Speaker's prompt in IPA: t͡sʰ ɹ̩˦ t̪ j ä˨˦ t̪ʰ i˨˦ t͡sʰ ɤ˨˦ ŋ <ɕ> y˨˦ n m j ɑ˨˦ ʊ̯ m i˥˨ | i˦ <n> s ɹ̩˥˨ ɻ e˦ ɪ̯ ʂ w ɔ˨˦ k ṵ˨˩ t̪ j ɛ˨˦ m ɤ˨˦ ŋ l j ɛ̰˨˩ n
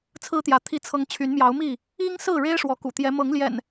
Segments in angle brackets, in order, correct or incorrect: incorrect, incorrect

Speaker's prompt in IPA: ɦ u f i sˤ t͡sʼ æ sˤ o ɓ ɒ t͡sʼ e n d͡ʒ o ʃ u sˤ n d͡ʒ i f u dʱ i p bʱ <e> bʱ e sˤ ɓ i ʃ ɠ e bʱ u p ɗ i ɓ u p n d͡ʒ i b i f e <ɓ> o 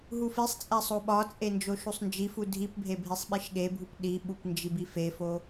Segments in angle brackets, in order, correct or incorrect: correct, incorrect

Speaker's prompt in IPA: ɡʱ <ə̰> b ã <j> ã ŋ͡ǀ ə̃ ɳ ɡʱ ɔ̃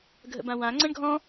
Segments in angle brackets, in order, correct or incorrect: correct, incorrect

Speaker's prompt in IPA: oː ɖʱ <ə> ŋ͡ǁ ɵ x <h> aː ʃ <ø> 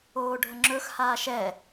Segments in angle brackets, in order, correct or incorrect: correct, correct, incorrect

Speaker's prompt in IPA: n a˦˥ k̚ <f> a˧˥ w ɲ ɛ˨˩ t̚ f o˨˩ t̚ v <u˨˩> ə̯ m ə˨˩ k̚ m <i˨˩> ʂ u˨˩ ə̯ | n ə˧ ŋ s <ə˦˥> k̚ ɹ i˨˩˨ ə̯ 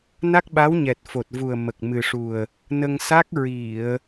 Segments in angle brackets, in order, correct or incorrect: incorrect, correct, incorrect, incorrect

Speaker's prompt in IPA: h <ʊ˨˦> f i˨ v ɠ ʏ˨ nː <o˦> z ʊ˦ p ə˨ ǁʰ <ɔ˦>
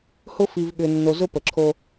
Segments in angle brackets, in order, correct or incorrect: incorrect, incorrect, incorrect

